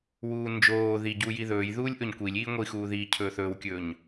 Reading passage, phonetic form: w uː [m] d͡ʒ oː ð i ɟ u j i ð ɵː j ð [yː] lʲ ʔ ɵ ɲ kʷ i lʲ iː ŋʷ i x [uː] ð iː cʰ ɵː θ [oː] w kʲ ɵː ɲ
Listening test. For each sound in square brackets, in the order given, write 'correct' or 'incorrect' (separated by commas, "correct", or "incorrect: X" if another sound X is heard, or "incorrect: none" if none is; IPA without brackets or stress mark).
incorrect: n, incorrect: uː, correct, incorrect: ɵː